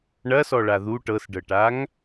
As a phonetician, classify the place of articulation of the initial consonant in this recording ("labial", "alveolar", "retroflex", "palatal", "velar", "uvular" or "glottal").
retroflex